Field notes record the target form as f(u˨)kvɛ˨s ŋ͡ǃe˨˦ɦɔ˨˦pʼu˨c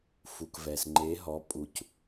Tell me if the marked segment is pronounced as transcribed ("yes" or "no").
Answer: yes